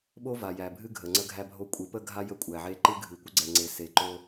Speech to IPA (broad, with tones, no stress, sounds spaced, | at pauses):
ɓ o˦ v a˨ j æ˨ bʱ ɨ˦ ɡʱ ə˨ ŋ͡ǀ ə˦ ɡʱ æ˦ bʱ o˦ kʷʼ ɨ˨˦ p ə˦ ɡʱ a˦ j ə˦ kʷʼ æ˨ ʕ e˦ ǃ ɨ˦ ɡʱ ɨ˨ kʷ ə˦ ɡ͡ǀ ɛ˨ ŋ͡ǀ e˨ s e˨ ǃ o˦